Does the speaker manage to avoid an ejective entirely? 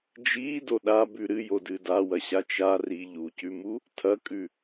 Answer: no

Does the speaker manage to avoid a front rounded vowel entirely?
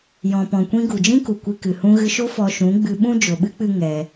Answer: yes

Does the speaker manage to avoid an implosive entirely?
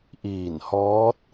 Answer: yes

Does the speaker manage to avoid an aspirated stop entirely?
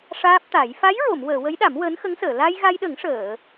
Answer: yes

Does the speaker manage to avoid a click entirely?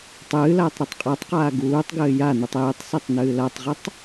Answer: yes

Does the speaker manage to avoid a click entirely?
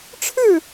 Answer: yes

